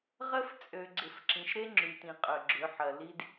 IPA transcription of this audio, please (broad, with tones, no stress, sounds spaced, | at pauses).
ʁ ə˦ f t͡sʼ ø˨ ɡ͡ǀ ɪ˨ f ǁ ĩ˨ ʃ ɾ e˦ ŋ͡ǁ y˨ t ĩ˨ qʼ œ˨ ɡ͡ǁ ʏ˨˦ ħ ɐ˨ l i˦ d